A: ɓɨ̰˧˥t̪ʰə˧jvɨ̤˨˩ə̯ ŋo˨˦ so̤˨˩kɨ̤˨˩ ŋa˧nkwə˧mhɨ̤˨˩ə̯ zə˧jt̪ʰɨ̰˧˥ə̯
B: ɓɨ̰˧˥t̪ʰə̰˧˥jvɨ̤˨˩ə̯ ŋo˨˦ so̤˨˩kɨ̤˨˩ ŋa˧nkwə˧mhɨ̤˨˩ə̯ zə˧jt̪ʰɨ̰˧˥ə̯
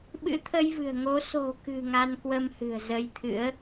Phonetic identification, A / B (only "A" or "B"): A